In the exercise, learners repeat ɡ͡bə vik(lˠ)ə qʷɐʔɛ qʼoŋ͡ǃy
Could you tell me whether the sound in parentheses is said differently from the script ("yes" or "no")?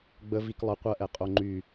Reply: no